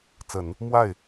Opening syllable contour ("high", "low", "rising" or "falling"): low